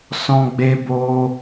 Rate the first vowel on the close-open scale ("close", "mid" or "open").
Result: mid